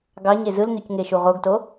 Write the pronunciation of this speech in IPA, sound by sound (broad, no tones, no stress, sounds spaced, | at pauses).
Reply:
ɡ ɑ ɲ e z ɯ l n̪ y c ŋ e ʃ u ʁ o ɡ t o